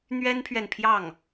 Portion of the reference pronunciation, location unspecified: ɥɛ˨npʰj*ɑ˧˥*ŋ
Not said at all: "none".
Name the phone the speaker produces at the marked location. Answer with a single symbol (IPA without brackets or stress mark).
ɑ˥˩